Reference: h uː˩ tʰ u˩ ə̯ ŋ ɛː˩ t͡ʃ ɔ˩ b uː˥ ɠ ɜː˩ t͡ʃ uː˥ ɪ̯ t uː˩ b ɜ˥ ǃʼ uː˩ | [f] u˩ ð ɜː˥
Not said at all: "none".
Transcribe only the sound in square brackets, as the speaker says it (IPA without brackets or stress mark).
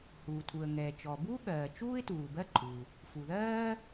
f